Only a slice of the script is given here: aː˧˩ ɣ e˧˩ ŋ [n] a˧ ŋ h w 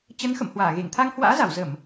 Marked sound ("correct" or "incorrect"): incorrect